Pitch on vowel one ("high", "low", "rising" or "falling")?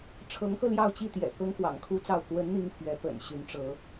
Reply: rising